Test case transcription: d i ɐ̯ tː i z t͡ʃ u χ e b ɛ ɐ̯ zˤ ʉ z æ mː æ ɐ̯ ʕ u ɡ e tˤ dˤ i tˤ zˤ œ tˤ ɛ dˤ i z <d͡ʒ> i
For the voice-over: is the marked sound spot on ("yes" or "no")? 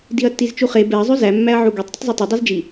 yes